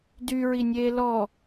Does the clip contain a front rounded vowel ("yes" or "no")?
yes